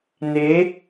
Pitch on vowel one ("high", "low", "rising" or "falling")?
rising